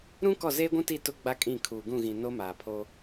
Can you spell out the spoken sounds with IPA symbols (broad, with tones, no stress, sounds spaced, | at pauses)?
ɾ ũ˦ k ɔ˦˨ z eː˦ ɡʷ ũ˦ t i˦˨ t ʊ˦ ɡ͡b a˦ kʼ ĩ˦˨ kʰ uː˨ ɡ ũ˦˨ ɣ ĩ˨ n o˦ m aː˨ pʰ oː˦